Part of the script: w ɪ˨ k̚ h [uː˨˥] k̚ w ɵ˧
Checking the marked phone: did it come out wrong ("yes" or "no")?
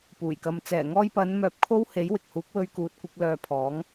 no